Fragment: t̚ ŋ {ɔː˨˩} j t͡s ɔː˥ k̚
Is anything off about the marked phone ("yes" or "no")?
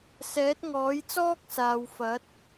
yes